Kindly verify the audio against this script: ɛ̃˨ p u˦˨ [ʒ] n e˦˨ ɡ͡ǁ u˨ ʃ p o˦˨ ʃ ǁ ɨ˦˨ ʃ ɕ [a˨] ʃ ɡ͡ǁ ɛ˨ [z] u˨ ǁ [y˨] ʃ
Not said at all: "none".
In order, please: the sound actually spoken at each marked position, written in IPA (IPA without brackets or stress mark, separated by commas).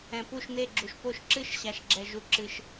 ʃ, a˨, ʒ, ɨ˨